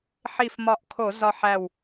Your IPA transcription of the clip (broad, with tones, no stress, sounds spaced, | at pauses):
ħ i˧˩ f m ɒ˧˩ ʔ kʰ o˧˩˧ z ɒ˧ ħ æ˧˩ w